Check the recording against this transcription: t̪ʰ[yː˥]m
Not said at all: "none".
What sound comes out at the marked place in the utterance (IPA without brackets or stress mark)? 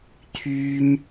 yː˥